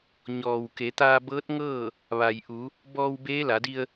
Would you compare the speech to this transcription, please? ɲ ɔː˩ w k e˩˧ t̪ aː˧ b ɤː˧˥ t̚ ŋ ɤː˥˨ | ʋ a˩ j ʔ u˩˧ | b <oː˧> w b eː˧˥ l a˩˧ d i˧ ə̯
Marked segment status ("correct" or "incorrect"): incorrect